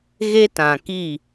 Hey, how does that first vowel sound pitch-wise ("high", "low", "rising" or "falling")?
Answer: high